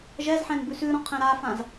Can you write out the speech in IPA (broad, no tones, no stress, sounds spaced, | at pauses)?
ʒ ɛ z ħ ɛ̃ n b ʉ s ʉ ɾ ɔ̃ qʰ ɛ̃ ɾ a f ã z